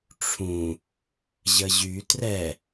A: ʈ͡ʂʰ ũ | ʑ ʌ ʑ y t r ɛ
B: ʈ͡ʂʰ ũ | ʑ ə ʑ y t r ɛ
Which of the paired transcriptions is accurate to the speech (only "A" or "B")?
B